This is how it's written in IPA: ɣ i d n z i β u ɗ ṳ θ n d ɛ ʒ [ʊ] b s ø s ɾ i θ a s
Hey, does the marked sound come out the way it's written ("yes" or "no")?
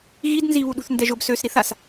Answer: yes